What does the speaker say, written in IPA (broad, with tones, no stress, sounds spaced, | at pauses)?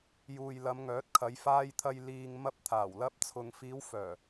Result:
j uː˨ j l ɐ˨˧ m ŋ œː˨˥ t̚ kʰ ɐ˨˧ j f aː˧ j t̪ʰ ɐ˧ j l iː˧ ŋ m ɐ˧ p̚ t̪ʰ aː˨˩ w l ɐ˧ p̚ t͡sʰ ʊ˨ ŋ f iː˨˧ w f œː˨˩